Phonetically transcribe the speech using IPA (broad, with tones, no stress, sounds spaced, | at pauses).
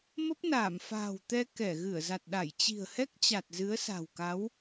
m ə˦˥ p̚ n aː˧˩ m f a̤ː˨˩ w t̪ ɛ˧ k ɛ˧˩ ɣ ɨ˧˩ ə̯ z a˨˩ t̚ ɗ a˧˩ j t͡ɕ i̤˨˩ ə̯ h ɛ˦˥ k̚ t͡ɕ a˨˩ t̚ z ɨ˨˦ ə̯ s a̤˨˩ w k a˨˦ w